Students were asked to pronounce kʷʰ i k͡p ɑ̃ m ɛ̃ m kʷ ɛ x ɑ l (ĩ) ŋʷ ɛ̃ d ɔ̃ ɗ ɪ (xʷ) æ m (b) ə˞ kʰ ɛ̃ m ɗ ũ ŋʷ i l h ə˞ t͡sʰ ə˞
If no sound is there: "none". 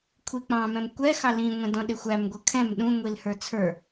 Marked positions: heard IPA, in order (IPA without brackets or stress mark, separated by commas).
ĩ, xʷ, ɡʷ